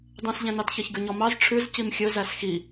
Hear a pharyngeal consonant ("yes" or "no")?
no